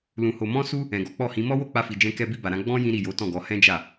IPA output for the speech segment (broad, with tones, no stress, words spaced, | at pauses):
lũ˨ho˨ mɔ̃˧su˧ | ɛ̃˨ɡɔ˨˦k͡pɔ˦˨hĩ˨˦ mɔ˦wo˦˨k͡pa˧fi˨ d͡ʒɛ̃˧kɛ˧bi˧ ba˨ɾã˧ ɡ͡bɔ̃˦ jĩ˦ɾi˦˨ jo˨˦tɔ̃˦˨ɡɔ˨˦ hɛ̃˦d͡ʒa˦˨